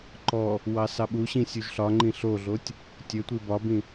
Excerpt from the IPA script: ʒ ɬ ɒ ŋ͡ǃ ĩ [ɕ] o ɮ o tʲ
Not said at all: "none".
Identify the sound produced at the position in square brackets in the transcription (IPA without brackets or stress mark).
ɬ